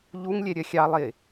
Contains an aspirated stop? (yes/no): no